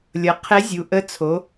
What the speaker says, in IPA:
lʲʌ˩˧ qʰɛ˧˥zʲu˩˧ ʔə˧˥ t͡sʰo˩˧

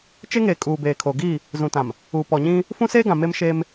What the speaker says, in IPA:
t͡ʃe˦ŋeː˨ kʼuː˨beː˨kʰo˨ ɡiː˦˨ | zũ˨tã˨m | u˨pɔ˨ ɲĩ˦ | fũ˦seː˦ɡã˨ me˦mʃeː˦m

